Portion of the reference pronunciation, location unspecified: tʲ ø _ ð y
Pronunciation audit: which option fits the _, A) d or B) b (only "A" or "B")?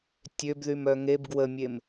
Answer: B